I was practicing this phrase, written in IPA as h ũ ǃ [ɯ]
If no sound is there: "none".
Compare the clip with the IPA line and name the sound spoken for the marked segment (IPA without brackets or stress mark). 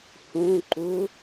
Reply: u